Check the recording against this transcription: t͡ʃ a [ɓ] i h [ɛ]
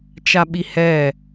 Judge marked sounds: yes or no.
yes, yes

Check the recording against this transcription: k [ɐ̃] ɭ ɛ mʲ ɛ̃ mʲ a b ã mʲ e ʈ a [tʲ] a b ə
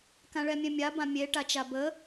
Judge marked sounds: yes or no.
no, no

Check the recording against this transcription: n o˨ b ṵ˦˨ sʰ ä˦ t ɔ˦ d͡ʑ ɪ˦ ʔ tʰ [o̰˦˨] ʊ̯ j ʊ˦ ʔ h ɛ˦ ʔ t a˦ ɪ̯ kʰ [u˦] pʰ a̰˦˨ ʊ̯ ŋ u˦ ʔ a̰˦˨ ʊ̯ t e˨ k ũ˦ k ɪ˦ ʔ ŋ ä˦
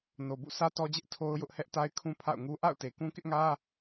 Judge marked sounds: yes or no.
no, no

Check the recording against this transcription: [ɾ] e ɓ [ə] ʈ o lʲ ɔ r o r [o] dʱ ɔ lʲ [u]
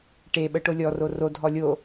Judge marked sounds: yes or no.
no, yes, yes, no

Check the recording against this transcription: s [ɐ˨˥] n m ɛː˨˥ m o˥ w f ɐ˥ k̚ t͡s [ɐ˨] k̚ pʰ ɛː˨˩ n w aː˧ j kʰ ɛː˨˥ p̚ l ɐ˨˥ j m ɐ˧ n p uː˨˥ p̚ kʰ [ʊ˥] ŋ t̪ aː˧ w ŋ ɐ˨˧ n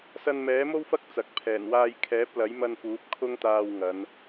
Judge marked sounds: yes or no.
no, no, yes

